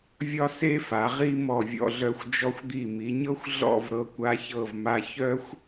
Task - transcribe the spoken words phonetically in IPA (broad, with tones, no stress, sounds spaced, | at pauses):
vʲ ɒ˥ s e˥ f a˩˧ ʁ i˥ m ɔ˧˩ vʲ ɔ̰˧ ɮ œ˧ xʷ d͡ʒ ɔ˧ xʷ d̪ i˧˩ m i˩˧ ɲ ɤ˥ xʷ ɮ ɔ̰˥˧ v ɾ ɤ˧ kʷ a˧ ç ɤ˧˩ v m a˧ ç œ˥ xʷ